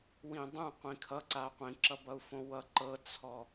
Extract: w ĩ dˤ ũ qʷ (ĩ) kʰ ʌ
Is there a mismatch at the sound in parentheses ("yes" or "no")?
no